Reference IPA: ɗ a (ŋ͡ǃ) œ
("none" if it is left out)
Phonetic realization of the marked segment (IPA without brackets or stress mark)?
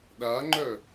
ŋ͡ǃ